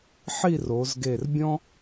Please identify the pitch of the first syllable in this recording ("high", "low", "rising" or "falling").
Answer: falling